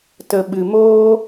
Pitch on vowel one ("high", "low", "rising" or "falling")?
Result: low